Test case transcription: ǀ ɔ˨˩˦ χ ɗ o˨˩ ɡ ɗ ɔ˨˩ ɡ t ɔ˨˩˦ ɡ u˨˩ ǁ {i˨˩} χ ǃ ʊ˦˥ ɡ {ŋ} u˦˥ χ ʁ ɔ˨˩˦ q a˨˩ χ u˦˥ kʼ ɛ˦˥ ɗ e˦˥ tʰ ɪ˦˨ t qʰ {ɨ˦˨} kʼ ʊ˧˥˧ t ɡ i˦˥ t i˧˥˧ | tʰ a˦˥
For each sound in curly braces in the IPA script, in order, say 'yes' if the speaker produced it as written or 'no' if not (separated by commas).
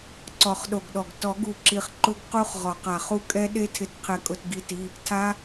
yes, no, no